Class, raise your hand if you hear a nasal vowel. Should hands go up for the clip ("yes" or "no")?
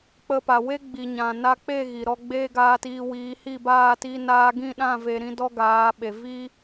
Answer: yes